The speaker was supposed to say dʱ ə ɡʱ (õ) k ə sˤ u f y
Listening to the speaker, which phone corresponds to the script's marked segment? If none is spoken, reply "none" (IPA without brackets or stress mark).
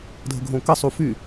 õ